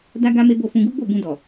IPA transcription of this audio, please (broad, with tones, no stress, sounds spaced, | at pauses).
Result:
d a˦ ɡ a˦ m e˦ b o˦˨ f ũ˧ ɡ u˦ ɡ͡b o˦˨ b ũ˧ d ɔ˨